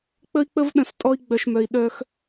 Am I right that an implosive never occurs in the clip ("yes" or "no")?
no